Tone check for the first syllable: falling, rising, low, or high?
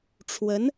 rising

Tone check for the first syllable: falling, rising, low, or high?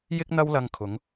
high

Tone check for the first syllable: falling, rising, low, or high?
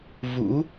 rising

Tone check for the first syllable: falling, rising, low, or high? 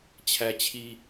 high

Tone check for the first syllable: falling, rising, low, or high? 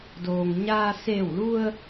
low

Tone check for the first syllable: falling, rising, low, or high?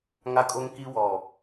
high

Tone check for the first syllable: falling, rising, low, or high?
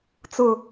low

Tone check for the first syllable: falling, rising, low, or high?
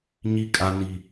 high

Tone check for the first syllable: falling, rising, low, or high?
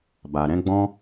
low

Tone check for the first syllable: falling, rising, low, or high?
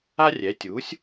high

